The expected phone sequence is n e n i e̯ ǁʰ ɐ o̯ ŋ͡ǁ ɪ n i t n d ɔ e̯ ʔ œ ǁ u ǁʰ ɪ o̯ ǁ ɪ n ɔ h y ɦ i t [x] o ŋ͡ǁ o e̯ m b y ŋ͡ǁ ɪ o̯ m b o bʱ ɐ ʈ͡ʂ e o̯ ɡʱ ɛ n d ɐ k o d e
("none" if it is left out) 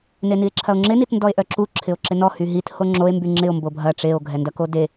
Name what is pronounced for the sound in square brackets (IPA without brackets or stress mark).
h